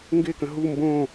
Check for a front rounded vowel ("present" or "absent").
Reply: absent